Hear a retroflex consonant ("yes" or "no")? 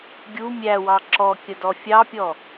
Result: no